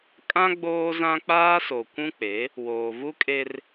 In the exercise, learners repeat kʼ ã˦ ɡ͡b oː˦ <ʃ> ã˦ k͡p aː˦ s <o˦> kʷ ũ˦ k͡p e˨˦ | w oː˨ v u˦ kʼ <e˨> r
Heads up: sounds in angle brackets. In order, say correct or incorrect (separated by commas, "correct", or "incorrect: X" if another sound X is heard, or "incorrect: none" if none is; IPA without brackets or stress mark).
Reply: incorrect: z, incorrect: o˨, incorrect: e˦